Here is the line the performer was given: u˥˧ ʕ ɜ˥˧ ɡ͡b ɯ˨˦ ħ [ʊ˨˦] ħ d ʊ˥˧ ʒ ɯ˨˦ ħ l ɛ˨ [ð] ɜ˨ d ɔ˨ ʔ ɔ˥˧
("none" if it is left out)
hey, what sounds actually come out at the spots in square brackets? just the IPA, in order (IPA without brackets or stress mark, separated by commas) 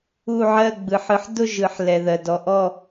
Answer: ɯ˨˦, ð